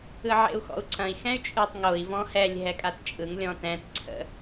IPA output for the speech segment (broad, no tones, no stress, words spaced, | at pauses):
ɯʕḛu̯xɔ̰u̯ǀɐ̃i̯ xɛ̃y̯t͡ʃʼɯtˤ ŋoi̯ vɔ̃hɛlʲ ɦɛkʼatt͡ʃʼɯŋ lʲɔ̃tɛ̃t ǀʰə̰